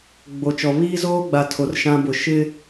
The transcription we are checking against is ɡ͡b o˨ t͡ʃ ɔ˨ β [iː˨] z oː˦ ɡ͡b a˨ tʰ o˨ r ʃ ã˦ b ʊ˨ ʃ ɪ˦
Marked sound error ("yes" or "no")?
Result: yes